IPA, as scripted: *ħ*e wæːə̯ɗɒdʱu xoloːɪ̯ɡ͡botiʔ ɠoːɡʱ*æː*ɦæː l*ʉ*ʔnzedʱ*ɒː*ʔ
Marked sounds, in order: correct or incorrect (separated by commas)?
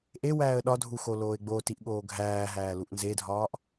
incorrect, correct, incorrect, correct